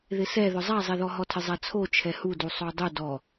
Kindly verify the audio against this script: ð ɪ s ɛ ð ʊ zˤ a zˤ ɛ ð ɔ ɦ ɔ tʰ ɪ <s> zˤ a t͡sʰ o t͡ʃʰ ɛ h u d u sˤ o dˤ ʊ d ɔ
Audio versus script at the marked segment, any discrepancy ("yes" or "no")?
yes